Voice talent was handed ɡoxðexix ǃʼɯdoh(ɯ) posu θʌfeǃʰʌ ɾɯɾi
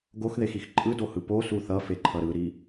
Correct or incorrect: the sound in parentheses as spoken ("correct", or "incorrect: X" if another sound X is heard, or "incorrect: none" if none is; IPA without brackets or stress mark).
correct